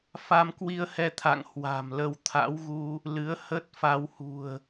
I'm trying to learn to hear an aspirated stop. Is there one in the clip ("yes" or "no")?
yes